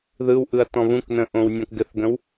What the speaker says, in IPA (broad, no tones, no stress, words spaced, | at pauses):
ðɯwʔɯɐ̯ tɔ̃βũknə̃ ʔõwnʲɔ̃kɡɘθɡə̃w